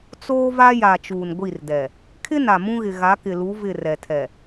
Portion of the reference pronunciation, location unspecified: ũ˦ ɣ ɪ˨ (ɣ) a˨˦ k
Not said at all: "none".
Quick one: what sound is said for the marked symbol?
ɣ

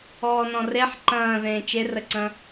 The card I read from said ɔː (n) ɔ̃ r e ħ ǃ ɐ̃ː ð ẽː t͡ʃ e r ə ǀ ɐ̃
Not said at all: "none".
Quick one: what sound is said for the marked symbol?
n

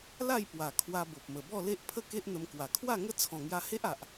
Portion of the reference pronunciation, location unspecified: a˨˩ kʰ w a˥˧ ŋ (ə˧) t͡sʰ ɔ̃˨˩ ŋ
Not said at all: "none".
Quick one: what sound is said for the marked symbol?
ə˦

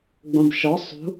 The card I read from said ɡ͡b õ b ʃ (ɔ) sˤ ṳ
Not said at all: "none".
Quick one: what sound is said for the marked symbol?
ɔ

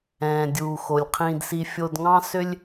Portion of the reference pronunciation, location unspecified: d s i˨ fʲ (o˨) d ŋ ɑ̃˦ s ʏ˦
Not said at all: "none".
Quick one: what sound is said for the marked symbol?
o˨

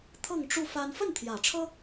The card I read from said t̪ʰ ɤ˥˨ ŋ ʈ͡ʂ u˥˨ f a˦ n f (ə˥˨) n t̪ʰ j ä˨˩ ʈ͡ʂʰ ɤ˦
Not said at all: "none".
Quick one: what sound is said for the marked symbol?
ə˥˨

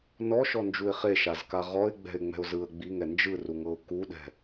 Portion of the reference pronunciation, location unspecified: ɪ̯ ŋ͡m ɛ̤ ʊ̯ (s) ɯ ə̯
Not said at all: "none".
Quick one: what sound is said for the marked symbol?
z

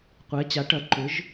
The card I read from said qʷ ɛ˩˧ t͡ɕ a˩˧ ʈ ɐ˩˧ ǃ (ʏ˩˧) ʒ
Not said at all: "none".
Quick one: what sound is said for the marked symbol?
ʏ˩˧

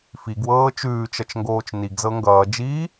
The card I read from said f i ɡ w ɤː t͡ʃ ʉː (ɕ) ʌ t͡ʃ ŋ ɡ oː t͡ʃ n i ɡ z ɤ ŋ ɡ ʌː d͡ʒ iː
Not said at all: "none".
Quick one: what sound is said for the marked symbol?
t͡ʃ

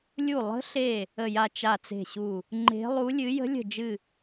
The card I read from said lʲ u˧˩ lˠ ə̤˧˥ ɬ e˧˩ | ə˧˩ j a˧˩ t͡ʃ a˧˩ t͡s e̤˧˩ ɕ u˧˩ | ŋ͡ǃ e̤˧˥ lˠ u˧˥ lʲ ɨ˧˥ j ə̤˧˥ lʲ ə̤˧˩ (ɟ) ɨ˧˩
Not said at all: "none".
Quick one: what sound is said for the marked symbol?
d͡ʒ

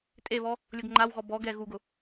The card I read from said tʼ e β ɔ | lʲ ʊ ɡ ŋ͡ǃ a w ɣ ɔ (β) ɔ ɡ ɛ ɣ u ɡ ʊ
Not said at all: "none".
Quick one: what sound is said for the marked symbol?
b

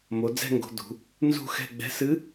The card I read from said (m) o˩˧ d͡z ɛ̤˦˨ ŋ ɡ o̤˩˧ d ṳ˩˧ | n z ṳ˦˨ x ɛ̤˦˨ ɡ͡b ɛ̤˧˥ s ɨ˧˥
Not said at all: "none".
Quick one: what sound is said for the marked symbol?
m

